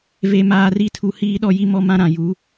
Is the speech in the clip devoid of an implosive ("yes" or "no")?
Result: no